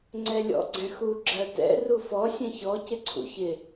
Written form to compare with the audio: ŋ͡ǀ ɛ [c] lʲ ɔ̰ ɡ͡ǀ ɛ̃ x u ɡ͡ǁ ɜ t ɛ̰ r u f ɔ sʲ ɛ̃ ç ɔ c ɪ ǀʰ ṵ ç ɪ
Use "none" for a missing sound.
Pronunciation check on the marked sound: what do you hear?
none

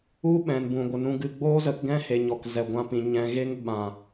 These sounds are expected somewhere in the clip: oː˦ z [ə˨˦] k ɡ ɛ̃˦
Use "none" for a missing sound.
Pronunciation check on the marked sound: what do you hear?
ə˨˦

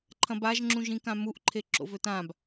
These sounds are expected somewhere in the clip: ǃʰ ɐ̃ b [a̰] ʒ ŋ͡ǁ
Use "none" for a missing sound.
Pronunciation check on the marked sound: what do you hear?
a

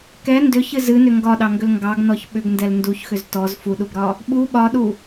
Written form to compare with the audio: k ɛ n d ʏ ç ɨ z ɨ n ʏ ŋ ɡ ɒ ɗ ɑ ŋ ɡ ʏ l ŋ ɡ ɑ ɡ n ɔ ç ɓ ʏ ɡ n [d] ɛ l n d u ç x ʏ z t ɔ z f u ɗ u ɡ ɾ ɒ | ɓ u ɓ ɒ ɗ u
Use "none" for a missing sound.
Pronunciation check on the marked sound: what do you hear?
d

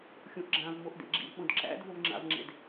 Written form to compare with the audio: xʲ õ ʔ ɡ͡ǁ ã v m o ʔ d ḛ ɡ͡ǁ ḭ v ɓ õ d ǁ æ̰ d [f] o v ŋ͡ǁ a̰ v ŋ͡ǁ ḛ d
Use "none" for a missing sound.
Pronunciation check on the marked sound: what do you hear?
v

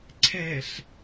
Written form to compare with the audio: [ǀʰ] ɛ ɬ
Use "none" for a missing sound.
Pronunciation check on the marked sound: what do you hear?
ǀʰ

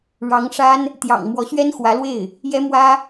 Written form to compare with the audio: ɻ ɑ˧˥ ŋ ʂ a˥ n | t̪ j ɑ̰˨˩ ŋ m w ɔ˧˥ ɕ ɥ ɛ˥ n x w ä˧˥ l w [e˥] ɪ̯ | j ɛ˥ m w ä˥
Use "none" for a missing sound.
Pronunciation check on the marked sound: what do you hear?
e˥˩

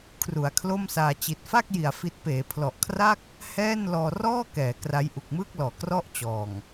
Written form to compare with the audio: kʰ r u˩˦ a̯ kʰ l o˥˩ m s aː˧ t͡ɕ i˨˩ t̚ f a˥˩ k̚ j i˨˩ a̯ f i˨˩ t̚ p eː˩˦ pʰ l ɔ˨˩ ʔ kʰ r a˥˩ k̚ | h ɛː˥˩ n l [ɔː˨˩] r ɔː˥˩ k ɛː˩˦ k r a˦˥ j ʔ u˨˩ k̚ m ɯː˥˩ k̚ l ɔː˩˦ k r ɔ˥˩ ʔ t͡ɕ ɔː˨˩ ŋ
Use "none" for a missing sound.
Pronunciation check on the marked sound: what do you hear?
ɔː˧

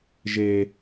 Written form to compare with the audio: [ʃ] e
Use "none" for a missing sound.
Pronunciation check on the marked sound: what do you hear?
ʒ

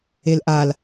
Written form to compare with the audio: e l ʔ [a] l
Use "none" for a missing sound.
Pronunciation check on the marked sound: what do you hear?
a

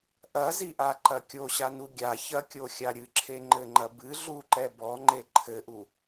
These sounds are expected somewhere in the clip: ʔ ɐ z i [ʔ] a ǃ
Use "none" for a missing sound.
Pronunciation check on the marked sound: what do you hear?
ʔ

